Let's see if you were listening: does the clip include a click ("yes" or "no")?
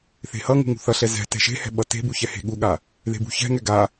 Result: no